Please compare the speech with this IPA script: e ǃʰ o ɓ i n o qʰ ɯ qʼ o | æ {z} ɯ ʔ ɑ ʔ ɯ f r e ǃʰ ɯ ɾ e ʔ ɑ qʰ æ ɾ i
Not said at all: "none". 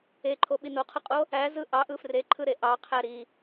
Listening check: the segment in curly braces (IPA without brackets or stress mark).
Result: z